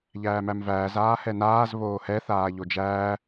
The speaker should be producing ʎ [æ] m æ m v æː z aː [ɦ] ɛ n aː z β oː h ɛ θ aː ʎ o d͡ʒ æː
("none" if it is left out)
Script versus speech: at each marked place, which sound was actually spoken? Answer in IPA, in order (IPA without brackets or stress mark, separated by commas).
æː, h